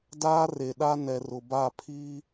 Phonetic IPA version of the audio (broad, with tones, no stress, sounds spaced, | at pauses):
d aː˦ r e˨ ɗ a˦ n ɛ˨ r ʊ˨ b a˦˨ pʰ i˦